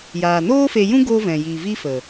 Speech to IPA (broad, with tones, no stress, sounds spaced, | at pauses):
j aː˨ n oː˦ f e˧ j ũ˦ ɡ o˦ v ɛ̃˨ j i˨ v i˦ f ə˨